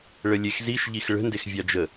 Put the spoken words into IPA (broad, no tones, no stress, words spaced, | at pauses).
ɭəlʲexziʃ ʎixɭə̤ndexvʲɑ d͡ʒə